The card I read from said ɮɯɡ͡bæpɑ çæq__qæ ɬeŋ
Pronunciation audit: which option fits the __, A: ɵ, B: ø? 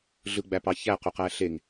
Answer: B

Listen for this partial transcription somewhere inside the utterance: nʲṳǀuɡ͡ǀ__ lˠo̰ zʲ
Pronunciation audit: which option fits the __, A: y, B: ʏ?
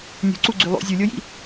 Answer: A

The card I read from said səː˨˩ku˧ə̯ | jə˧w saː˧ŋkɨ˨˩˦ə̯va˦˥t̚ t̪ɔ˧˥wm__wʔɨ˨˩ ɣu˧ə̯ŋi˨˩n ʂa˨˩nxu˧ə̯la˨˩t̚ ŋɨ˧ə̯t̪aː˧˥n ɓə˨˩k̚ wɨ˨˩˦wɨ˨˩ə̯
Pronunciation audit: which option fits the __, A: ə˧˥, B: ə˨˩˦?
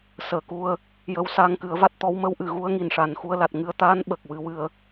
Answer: A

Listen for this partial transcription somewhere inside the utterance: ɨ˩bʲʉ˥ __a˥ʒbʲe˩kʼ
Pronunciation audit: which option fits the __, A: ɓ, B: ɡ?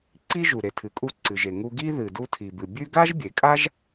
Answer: B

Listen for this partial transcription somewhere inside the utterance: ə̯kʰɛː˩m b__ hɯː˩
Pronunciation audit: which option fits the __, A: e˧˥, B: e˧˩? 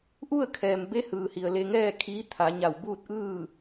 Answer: A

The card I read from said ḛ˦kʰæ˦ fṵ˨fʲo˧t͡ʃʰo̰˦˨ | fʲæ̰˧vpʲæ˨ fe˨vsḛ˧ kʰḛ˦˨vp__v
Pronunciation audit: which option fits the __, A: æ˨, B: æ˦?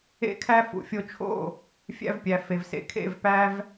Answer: B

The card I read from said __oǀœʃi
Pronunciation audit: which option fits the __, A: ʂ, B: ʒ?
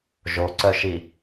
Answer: B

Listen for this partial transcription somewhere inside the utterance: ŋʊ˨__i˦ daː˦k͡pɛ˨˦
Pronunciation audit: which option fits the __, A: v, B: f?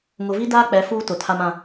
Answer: A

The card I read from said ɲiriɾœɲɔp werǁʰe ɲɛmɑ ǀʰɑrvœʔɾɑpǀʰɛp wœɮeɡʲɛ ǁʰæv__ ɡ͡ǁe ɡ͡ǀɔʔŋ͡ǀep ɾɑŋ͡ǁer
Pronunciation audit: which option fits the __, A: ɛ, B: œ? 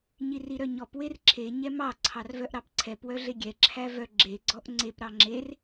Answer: B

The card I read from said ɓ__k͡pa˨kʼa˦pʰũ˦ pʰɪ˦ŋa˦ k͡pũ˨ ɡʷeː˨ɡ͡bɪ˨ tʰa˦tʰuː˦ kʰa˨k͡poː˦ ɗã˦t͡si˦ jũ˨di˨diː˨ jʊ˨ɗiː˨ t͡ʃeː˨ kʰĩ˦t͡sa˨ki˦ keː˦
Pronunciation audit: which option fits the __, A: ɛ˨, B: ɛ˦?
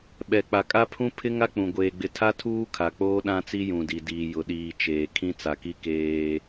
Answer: A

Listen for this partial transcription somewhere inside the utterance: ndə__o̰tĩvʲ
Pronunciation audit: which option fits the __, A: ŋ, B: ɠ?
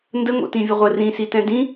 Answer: A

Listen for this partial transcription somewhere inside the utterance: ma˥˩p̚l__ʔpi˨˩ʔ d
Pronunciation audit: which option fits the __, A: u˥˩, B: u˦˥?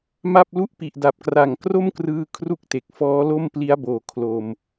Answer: A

